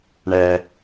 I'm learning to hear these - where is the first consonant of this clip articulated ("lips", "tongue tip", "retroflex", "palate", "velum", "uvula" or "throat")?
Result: retroflex